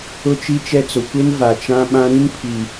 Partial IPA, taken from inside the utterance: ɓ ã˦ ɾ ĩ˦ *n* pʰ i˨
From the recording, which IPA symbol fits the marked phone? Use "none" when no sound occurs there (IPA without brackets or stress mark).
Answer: n